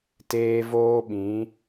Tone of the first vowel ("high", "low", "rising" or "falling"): high